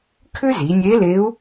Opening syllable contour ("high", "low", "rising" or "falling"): high